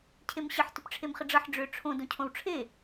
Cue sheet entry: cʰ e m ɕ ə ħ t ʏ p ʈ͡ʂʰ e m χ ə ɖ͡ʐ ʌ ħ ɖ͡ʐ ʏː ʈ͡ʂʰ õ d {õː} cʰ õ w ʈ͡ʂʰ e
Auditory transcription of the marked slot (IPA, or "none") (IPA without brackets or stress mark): õ